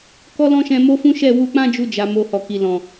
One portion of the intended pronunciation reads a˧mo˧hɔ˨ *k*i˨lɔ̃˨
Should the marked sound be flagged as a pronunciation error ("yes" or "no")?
no